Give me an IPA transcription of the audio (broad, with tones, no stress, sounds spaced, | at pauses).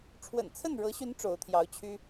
ʈ͡ʂʰ w ə̰˨˩ n t͡sʰ ə˥˩ n ɻ ɤ˧˥ ɕ y˧˥ n ʈ͡ʂ o˧˥ ʊ̯ t̪ʰ j ɑ˧˥ ʊ̯ t͡ɕʰ y˥